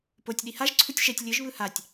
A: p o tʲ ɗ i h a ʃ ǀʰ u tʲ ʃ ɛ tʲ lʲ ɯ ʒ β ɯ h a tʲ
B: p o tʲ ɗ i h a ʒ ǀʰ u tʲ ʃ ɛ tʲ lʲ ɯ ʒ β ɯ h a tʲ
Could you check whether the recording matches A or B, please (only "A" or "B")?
B